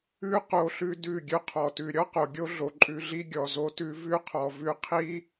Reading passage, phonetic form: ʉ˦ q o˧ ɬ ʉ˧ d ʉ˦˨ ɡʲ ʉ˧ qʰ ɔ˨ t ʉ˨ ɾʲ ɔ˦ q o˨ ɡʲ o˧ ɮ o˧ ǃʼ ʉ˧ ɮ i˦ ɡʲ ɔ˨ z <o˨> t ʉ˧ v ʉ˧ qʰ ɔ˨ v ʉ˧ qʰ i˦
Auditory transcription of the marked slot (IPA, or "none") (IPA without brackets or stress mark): o˧